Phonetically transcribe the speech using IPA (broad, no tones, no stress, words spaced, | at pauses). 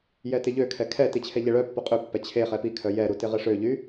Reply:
jɛtɪʎøkʰɛ kʰɛti t͡ɕʰɛʎɛɭœpːo qʼøpːɛ t͡ɕʰe χɛpikʰœ jɛɾu tɪʁɪʂøʎy